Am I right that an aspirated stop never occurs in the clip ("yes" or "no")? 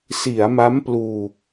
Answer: yes